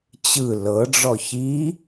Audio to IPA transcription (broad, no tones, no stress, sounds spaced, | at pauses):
t͡ɕ ɯ l ɤ ɖ͡ʐ ɔ ç i